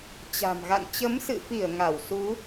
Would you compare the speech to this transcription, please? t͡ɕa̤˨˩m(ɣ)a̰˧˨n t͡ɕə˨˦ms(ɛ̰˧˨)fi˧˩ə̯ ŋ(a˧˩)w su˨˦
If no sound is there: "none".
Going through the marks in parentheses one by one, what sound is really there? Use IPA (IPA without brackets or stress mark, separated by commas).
ɣ, ɨ̰˧˨, a˧˩